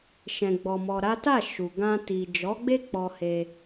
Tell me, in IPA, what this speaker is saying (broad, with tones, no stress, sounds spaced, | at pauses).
ʃ ɛ̃˧ ɡ͡b ɔ˧ m ɔ˧ ɾ a˦ t a˦˨ ʃ u˨ ɡ ã˧ t i˨ d͡ʒ ɔ˨˦ ɡ͡b e˦ k͡p ɔ˧ h e˧